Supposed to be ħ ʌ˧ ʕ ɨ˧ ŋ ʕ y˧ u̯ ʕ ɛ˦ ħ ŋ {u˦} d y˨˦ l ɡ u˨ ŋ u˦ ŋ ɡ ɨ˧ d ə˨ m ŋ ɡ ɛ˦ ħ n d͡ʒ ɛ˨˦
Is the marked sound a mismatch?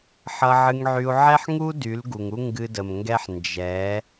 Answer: no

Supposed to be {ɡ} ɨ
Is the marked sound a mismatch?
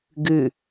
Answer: no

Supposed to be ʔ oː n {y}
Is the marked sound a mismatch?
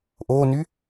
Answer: no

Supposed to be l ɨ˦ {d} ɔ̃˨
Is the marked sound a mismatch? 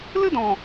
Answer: no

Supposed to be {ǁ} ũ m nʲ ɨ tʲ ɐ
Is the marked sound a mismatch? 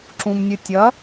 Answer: no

